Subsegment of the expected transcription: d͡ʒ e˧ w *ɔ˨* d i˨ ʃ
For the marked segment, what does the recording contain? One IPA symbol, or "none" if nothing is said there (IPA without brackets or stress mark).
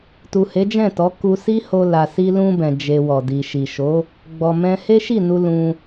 ɔ˨